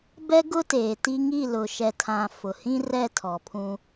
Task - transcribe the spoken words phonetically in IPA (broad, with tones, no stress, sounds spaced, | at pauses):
b ɛ˦ ɡ ʊ˦ t eː˨ t i˦ ŋ i˦˨ l ʊ˨ ʃ ɛ˨ tʰ ã˨ f ʊ˨ h ĩ˦ r ɛ˦˨ tʰ ɔ˨ pʰ ũ˦